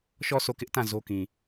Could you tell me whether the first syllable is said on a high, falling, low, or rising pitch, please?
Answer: falling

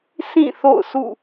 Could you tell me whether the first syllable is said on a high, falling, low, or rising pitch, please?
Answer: falling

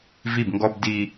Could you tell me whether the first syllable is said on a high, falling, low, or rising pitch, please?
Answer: falling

